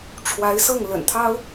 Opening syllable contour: rising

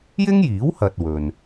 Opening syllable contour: high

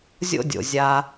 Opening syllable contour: high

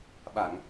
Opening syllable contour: low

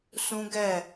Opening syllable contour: high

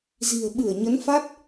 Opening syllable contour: low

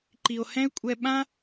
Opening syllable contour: low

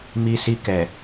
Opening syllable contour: high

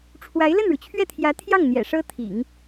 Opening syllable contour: rising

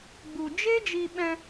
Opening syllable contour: low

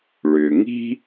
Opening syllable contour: low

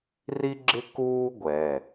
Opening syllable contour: high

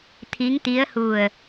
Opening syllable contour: rising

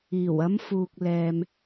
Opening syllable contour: low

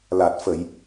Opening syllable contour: low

